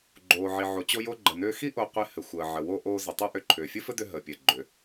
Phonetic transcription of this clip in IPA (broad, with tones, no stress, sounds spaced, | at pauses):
ɡ͡ǃ oː˩ ʕ i˩ ʕ o˩ t͡ɕ o˧ j o˧ ɡ͡ǃ ə˩ n ʏː˧ x i˥ ʔ o˧ qʷ e˧ h ɘ˩ xʷ əː˩ ʕ ə˩ w o˧ ʔ oː˧ z ə˩ tˤ e˥ ʔ ʏ˧ ǃʰ ʏː˩ fʲ ɘ˥ f ɘ˥ d ʏ˧ ɦ əː˩ pʲ ɘː˩ ɡ͡ǃ ʏ˩